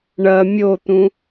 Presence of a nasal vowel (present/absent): present